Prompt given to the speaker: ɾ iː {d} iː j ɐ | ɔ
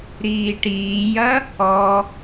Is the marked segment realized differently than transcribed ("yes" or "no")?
yes